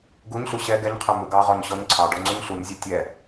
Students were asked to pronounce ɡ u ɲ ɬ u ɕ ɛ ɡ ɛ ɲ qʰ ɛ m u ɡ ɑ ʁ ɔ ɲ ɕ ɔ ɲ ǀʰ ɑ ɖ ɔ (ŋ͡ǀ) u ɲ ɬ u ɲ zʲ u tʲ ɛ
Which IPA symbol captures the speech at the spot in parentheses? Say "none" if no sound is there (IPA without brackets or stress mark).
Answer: ŋ͡ǀ